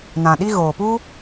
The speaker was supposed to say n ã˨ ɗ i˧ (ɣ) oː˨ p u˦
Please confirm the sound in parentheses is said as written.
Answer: yes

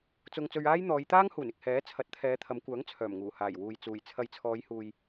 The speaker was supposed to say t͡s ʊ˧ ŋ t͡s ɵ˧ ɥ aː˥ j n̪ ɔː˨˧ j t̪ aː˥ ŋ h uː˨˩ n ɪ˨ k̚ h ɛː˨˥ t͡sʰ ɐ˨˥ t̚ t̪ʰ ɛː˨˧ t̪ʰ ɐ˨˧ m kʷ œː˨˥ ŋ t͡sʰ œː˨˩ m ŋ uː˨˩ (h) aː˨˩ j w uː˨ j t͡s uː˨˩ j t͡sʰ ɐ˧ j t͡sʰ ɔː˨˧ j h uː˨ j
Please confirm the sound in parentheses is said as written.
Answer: yes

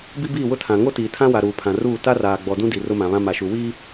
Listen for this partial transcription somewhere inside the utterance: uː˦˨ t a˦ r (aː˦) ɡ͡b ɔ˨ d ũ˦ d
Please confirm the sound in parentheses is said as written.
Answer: no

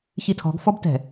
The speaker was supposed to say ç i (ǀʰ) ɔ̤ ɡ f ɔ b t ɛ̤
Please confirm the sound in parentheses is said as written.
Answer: no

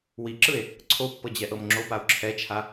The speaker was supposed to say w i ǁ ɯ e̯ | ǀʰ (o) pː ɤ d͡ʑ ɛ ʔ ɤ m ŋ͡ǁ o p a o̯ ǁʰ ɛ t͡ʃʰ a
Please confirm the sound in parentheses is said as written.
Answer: yes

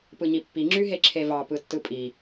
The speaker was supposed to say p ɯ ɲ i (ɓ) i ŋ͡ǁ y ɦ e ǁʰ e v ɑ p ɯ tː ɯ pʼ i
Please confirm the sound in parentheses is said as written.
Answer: no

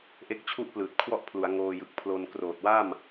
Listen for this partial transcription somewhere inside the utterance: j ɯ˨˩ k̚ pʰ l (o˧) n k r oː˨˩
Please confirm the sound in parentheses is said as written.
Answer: yes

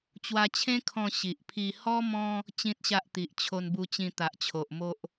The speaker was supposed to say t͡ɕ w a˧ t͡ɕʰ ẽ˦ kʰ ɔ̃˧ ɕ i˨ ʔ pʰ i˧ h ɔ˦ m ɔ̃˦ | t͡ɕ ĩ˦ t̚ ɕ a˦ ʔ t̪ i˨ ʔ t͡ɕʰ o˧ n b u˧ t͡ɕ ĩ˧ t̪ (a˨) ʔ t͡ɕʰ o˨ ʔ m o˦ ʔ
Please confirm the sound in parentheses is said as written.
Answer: yes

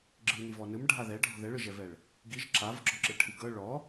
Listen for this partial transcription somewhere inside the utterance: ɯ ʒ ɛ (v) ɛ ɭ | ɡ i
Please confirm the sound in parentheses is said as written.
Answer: yes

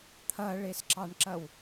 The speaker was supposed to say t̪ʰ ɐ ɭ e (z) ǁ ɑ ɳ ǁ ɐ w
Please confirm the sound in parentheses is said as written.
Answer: no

